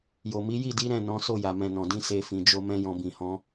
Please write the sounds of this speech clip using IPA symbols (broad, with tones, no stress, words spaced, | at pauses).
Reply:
jo˨mi˨˦ ji˦˨di˨˦ ɾɛ̃˦˨nɔ̃˨˦so˦˨ja˨ mɛ̃˨nɔ̃˨dĩ˧ se˧fĩ˨ d͡ʒo˧mɛ̃˧ jɔ̃˨bĩ˨hɔ̃˧